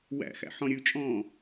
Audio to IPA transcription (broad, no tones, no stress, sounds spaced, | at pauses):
w æ̰ x æ̰ ħ ɔ̃ ɾʲ ʉ t͡ʃʼ ɔ̃ː